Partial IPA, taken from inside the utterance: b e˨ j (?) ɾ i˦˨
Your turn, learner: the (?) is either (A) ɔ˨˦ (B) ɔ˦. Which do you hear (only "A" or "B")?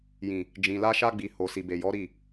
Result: A